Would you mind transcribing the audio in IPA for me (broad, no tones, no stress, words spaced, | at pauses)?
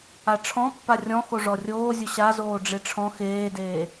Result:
aʈ͡ʂʰɔ̃ pːarʲɔ̃ xoʐɔrʲoːzʲʊ ɕazoː ɖ͡ʐeʈ͡ʂʰɔ̃ xeːdeː